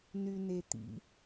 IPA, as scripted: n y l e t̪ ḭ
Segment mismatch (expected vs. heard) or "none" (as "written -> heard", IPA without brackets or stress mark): l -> n